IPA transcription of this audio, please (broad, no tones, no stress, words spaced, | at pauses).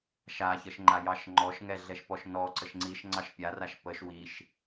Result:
ʃaçəʃŋ͡ǃa jɑʃŋ͡ǃɔʃŋɛɮɛʃ pɔʃnɔ ǀəʃŋ͡ǀiʃ ŋ͡ǀɑʃpʲaraʃ pəʃ wiʃ